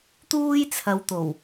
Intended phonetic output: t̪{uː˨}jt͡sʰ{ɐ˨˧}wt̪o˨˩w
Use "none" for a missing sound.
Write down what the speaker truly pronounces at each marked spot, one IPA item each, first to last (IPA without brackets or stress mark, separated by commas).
uː˥, ɐ˨˧